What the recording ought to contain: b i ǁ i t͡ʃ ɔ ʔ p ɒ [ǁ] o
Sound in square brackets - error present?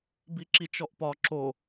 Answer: no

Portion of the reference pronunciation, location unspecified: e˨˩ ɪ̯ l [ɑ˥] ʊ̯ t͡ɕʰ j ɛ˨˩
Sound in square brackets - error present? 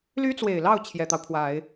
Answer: yes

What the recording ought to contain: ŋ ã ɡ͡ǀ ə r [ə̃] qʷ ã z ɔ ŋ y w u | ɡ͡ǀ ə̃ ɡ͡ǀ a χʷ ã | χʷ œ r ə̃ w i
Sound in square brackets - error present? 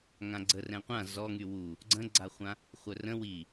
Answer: yes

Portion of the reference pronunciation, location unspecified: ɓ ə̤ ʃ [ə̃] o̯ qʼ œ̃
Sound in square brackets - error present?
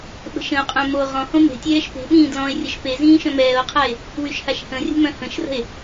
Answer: no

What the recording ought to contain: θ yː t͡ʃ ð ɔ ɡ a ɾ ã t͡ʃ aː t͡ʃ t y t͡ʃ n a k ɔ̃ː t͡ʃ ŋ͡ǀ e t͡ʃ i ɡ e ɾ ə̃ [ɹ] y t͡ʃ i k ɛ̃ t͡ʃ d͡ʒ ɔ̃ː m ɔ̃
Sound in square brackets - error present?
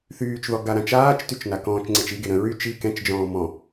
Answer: no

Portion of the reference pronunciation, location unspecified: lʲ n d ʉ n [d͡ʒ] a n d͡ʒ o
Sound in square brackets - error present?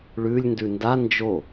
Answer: yes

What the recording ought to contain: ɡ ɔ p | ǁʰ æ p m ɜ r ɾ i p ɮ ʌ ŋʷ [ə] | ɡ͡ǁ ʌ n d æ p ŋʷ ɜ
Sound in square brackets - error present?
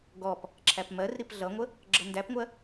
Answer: no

